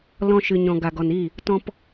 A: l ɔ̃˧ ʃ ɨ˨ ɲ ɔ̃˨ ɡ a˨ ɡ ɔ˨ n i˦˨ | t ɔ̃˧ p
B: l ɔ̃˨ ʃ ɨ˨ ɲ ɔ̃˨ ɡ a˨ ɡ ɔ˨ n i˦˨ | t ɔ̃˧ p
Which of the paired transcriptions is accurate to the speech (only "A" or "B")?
A